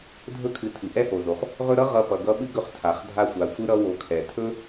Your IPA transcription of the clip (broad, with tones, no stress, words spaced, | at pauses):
dʱɵ˥kʰɨ˨ tʰɨ˩ʔɛ˥ho˩zo˩χ | ʁɵ˦ɾʌ˥ ʁʌ˦pʌ˨ɡʌ˥ ɓɨ˥ɡɵ˦χ tʰa˩χ dʱa˦sʷa˨sʷɨ˥ ɾʌ˥ wo˨kʰɛ˩ tʰɵ˥